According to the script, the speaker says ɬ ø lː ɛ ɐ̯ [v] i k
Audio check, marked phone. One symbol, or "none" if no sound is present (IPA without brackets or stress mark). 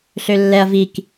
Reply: v